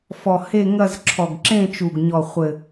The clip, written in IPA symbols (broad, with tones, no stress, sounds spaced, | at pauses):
f ɔ˨˩ h e˥˧ ŋ ɐ˥˧ z ǁʰ ɔ˨˩ ɡ ǁ ẽ˥˧ t͡ʃ u˨˩ ɡ ɲ ɔ˨˩ χʷ ɘ˨˩